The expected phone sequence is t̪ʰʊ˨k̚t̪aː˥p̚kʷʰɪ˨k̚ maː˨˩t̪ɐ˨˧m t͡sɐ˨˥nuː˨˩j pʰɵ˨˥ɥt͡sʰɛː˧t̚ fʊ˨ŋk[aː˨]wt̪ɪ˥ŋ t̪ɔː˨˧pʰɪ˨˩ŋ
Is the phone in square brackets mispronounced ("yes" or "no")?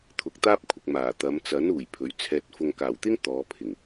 yes